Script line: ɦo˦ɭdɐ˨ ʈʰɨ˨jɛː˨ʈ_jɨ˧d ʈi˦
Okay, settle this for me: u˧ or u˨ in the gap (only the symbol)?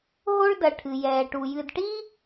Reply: u˨